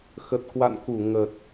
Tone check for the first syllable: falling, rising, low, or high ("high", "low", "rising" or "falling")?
low